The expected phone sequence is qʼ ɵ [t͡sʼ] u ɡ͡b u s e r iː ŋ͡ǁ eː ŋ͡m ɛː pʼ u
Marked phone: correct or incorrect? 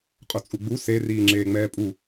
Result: correct